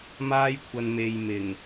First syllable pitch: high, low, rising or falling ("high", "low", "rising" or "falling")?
high